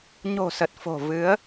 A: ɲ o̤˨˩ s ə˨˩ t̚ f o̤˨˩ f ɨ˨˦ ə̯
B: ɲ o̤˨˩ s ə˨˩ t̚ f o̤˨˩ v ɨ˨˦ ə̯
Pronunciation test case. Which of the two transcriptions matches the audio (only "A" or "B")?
B